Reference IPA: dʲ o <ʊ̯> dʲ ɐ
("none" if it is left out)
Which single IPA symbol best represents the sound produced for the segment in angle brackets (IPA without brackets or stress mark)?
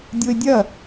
ɪ̯